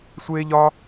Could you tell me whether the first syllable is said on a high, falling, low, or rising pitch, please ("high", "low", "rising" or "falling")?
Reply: high